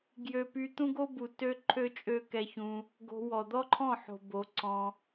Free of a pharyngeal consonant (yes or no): no